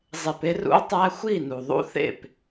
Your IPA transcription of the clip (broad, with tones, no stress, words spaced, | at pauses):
zˤe˧pe˦rṵ˦o̯ tˤæ˦ xʷi˦˨nu˨ðˤṵ˦θḛ˦˨p